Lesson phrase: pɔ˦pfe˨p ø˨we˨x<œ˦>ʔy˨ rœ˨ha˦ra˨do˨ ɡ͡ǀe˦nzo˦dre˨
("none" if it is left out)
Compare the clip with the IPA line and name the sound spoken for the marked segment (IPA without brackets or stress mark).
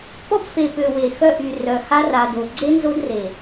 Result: œ˦